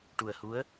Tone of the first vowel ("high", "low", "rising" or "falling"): low